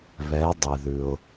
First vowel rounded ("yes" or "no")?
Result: no